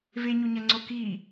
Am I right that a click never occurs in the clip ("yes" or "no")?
no